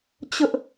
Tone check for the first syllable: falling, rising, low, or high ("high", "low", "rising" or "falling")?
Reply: high